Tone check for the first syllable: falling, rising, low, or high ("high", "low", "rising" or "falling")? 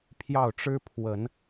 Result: falling